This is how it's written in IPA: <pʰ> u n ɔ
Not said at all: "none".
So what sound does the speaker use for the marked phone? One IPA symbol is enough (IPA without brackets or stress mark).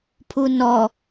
pʰ